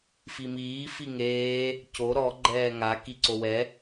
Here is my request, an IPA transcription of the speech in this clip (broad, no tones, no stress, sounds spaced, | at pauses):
f i m iː f i ŋ eː | c o ɾ ɔ ɡ͡ǃ ɛː ŋ a k i ǀ o w ɛ